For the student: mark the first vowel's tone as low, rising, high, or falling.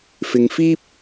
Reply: low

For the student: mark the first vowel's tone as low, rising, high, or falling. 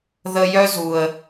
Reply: low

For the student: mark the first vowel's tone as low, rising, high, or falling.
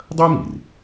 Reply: high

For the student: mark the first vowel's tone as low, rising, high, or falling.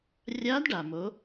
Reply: rising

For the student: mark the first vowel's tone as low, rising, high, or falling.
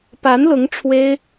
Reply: rising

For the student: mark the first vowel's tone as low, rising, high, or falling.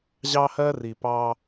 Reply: high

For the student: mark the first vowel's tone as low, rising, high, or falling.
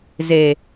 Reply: low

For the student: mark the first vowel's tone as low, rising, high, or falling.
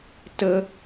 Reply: high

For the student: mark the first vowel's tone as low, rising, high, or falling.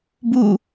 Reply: falling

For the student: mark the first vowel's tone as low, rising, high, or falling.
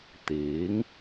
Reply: rising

